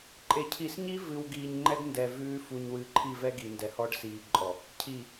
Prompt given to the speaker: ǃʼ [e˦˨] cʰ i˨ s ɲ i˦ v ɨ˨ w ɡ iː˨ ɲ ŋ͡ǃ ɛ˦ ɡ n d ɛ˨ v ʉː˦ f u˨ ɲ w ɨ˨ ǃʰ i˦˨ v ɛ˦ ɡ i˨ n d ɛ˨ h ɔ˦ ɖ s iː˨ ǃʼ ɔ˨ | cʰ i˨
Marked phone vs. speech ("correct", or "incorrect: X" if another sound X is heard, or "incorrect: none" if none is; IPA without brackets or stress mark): incorrect: e˨